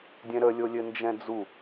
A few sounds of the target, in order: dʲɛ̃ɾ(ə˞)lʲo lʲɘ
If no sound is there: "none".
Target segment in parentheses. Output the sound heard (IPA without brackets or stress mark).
ə